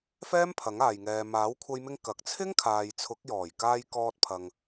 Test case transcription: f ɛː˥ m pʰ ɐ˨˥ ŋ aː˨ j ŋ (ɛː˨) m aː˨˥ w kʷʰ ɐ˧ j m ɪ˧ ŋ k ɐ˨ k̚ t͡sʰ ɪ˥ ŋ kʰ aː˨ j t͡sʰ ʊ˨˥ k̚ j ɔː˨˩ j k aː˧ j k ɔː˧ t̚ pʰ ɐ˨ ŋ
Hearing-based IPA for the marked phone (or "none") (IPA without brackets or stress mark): ɛː˨